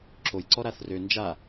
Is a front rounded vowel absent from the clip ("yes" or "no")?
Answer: no